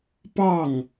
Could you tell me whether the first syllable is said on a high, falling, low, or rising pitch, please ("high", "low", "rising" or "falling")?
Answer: falling